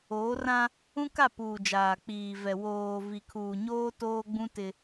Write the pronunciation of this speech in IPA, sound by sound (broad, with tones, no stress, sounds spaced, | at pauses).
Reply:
oː˨˦ r ã˦ | ũ˦ k a˦˨ p uː˨ d͡ʒ aː˨ k͡p iː˨ v ɛ˨ w oː˨ v i˨ kʰ uː˨ ɲ oː˦ t oː˦ ɡ͡b ũ˦ t ɪ˦